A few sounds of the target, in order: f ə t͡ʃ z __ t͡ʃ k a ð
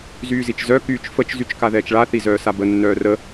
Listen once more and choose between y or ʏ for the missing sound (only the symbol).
y